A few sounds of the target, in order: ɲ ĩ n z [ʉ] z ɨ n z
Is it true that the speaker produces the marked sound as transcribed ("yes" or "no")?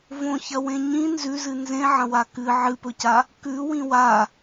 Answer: yes